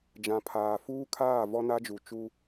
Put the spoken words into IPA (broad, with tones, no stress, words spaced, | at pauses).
d͡ʒã˨pʰaː˨fuː˦kʰaː˦˨ vɔ˦na˦d͡ʒu˨ t͡ʃu˦